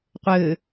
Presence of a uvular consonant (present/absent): present